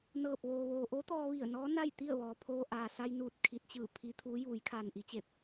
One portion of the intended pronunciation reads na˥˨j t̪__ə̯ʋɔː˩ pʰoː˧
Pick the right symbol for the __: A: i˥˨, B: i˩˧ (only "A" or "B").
A